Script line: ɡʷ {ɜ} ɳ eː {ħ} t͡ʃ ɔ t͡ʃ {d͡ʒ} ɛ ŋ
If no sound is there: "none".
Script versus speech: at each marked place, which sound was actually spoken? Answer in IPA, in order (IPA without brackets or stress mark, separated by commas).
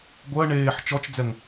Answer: ɜ, ħ, d͡z